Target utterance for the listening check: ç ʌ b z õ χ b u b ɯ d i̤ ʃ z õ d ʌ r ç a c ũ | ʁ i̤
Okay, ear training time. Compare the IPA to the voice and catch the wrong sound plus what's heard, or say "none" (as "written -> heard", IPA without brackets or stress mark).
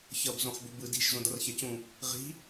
none